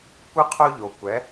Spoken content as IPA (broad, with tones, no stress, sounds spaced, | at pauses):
kʷ ɨ˥ qʰ o˥ ʎ o˩ kʷ ɛ˩˥